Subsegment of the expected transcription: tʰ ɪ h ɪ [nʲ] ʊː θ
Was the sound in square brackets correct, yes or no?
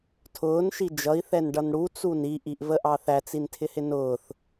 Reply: no